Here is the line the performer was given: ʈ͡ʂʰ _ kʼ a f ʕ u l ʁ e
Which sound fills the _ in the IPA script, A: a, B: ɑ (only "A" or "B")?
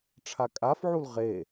A